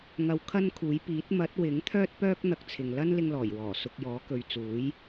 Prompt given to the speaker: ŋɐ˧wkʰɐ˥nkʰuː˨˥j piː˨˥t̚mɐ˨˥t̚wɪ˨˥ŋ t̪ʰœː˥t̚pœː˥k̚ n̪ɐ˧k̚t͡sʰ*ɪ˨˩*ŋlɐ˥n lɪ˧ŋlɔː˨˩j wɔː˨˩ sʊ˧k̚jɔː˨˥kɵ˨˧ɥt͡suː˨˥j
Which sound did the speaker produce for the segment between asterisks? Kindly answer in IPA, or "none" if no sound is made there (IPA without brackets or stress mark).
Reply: ɪ˨